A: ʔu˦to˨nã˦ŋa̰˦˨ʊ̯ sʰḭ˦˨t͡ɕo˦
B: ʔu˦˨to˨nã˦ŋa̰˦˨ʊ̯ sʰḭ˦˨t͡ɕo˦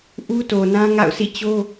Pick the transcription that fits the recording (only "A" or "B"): A